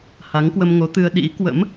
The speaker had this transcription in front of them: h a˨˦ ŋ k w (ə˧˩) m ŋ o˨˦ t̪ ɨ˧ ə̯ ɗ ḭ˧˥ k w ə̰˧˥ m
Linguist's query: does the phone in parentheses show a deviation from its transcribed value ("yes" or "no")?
yes